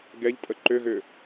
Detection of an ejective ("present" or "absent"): present